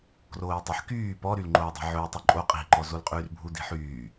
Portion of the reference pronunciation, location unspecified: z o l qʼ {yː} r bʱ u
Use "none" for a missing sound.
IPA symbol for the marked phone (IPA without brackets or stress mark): yː